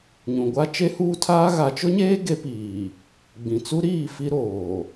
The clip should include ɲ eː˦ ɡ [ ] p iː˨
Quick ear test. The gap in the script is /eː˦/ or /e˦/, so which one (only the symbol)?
e˦